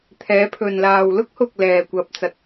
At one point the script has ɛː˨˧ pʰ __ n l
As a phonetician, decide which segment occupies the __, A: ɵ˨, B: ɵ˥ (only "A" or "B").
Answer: A